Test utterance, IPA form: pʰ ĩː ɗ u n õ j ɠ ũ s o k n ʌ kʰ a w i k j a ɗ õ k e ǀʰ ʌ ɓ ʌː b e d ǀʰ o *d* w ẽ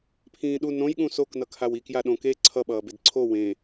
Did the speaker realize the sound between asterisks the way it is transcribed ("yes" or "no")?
no